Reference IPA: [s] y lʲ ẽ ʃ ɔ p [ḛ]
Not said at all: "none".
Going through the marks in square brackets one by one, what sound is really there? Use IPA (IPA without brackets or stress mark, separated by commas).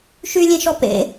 ʃ, ḛ